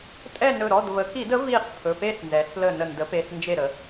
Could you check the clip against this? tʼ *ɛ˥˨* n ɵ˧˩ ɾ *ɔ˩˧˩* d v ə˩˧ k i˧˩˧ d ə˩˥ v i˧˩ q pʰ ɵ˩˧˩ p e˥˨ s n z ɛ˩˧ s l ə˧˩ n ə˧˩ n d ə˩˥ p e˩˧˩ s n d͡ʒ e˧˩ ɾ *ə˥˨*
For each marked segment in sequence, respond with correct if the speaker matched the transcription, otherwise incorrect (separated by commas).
correct, correct, incorrect